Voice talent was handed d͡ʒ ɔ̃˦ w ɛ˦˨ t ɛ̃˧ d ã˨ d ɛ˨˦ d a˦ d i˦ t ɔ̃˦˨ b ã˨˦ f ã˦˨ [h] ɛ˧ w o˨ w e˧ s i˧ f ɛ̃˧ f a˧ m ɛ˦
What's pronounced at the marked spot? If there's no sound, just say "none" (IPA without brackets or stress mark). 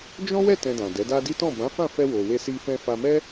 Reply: f